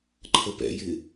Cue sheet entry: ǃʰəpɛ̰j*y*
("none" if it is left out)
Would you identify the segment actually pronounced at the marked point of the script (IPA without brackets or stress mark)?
ɪ